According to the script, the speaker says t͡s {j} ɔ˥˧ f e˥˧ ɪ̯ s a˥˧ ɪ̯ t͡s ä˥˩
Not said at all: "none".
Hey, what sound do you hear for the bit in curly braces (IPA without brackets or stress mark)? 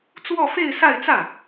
w